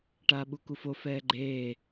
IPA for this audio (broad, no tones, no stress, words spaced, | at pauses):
ʈaːɓukufo fɛːɡ͡ǃeː